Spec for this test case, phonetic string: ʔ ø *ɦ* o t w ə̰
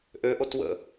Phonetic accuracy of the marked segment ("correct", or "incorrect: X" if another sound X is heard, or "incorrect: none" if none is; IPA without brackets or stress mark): incorrect: ʔ